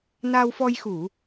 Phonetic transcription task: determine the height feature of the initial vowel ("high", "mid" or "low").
low